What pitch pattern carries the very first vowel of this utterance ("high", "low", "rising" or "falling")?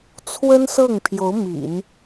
high